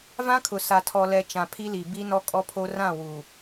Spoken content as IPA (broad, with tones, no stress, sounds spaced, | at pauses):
v ã˦ kʰ ʊ˨ s a˨ tʰ ɔ˨ l ɛ˨ t͡ʃ ã˨ pʰ i˦ l i˨ b i˦ n ɔ˦ kʼ ɔ˦ pʰ o˦ r ã˦˨ w u˨